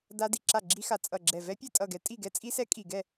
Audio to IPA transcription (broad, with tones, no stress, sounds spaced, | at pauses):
d a˦˥ d i˧˩ ǁ a˥˨ ɡ͡ǁ i˦˥ x a˧˩ t͡sʼ ʌ˧˩ ɡ͡ǁ ɛ˧˩ v ɛ˦˥ pʲ ɛ˥˨ tʼ ʌ˥˨ ɡ ɛ˦˥ tʼ i˥˨ ɡ ɛ˦˥ t͡sʼ i˦˥ s ɛ˦˥ kʼ i˧˩ ɡ ɛ˥˨